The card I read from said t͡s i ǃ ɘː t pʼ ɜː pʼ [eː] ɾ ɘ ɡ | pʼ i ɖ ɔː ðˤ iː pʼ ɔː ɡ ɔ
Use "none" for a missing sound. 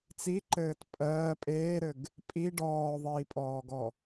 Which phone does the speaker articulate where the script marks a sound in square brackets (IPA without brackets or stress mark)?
eː